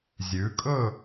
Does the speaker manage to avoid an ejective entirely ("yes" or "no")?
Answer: no